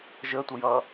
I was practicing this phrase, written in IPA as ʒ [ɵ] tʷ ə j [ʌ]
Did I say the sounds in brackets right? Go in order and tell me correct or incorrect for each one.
incorrect, correct

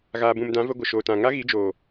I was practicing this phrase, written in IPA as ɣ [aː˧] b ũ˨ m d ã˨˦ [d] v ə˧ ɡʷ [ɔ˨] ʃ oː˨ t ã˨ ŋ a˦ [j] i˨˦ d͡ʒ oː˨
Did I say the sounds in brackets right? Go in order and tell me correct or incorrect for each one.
incorrect, incorrect, incorrect, incorrect

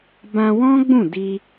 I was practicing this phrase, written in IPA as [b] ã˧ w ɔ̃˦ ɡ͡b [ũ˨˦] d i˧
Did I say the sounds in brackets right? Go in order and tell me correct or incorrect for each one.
correct, incorrect

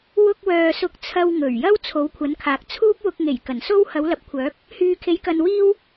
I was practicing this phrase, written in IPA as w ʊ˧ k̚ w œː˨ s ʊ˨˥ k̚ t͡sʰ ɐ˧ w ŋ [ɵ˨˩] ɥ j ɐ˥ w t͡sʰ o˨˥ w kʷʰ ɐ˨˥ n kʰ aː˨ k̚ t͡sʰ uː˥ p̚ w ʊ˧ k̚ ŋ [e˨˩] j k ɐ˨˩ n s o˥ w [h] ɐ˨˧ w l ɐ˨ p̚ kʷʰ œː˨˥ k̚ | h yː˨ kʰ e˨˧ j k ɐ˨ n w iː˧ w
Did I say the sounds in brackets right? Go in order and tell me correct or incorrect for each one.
correct, correct, correct

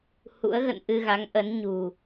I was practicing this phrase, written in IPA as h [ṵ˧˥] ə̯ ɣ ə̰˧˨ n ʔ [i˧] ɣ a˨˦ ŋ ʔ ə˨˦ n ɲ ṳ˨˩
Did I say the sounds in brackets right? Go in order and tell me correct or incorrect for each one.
correct, incorrect

